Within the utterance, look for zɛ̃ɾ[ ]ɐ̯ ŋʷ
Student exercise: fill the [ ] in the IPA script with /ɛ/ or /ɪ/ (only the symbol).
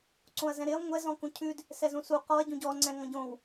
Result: ɪ